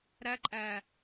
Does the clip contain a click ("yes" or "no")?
yes